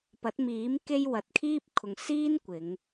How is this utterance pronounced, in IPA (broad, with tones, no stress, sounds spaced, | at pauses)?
p ɐ˨˥ t̚ m iː˨˥ m k e˧ j w ɐ˨ t̚ kʰ iː˥ p̚ kʰ ʊ˨ ŋ s iː˥ n kʷ ɪ˨˧ ŋ